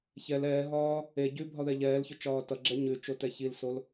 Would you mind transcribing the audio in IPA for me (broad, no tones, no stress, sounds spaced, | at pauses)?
ç ɛ l ɛː ɦ ɒː | e ɟ ʉ bʱ ɒ ð ɛ ʎ ɛː l ç ʊ t͡ʃ ɒː t ʌ ɡ͡ǁ ɛ ɲ ʉ t͡ʃ o t ɛ ç i l s o l